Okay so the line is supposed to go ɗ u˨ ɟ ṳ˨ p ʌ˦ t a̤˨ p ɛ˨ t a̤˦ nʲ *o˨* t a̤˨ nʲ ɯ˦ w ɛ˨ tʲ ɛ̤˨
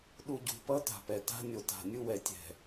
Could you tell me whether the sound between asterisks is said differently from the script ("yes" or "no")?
no